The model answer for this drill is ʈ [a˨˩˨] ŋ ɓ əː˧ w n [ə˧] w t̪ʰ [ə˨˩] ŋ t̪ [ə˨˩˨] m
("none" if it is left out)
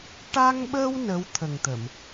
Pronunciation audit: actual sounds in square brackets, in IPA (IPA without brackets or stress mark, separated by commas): a˧, ə˧˥, ə˨˩, ə˨˩˨